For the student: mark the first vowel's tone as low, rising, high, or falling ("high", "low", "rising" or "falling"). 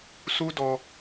high